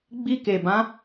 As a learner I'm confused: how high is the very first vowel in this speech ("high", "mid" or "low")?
high